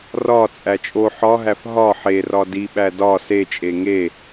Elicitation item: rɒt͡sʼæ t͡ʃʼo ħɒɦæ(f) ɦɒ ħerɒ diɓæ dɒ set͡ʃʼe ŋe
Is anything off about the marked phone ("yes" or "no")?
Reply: no